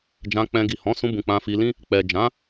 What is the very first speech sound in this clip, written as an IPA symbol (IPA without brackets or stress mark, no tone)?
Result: d͡ʒ